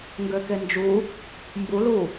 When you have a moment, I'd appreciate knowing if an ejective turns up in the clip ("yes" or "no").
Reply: no